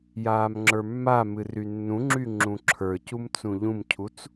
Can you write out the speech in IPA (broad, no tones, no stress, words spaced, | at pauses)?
jaːmŋ͡ǁə˞mːamɨ rynːũŋ͡ǁy ŋ͡ǁũǁʰə˞cum t͡sũʎũmcʰut͡s